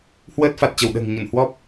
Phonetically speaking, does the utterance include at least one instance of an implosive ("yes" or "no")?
yes